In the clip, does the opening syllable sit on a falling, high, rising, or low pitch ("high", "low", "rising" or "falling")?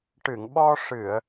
low